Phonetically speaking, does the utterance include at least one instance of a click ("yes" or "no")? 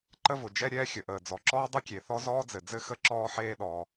yes